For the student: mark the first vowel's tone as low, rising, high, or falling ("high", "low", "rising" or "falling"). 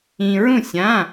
low